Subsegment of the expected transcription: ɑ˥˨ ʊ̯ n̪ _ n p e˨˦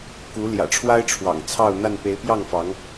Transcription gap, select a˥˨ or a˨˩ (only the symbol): a˥˨